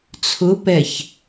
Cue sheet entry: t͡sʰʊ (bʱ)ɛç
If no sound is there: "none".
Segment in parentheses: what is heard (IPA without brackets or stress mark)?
p